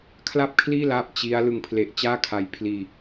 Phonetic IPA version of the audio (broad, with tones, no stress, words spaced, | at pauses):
kʰla˥˩p̚kʰliː˥˩laː˦˥p̚ t͡ɕi˦˥a̯ lɯ˨˩ŋpʰle˨˩ʔ t͡ɕaː˥˩kʰa˦˥j pʰliː˧